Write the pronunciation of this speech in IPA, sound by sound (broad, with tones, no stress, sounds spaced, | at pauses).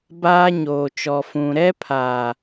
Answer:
b aː˦ ɲ oː˨ t͡ʃ ɔ˨ f ũ˨ ɾ ɛ˦ pʰ aː˨